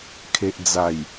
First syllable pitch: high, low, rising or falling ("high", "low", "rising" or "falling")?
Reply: low